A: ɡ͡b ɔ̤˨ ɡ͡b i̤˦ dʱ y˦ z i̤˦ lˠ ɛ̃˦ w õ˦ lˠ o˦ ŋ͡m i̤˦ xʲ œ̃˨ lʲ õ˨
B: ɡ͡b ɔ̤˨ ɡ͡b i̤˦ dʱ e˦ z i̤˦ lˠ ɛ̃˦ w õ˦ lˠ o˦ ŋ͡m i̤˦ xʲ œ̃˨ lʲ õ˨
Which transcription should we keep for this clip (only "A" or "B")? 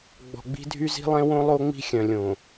A